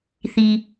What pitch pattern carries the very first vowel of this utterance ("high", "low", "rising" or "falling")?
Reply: low